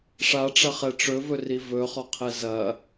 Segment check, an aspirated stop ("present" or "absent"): present